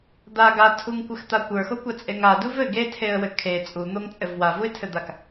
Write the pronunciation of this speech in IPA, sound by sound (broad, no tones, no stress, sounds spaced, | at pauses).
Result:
d̪ a ɡ a tʰ u ŋ kʷ ɘ x t̪ a kʷ ə˞ x o kʷ a t͡sʼ e ŋ a d u v ɘ ɡ e tʰ e ə̯ w ɘ kʰ e t͡sʼ u n̪ o ŋ t͡sʼ ɘ v w a v u ɪ̯ tʰ ɘ d̪ a k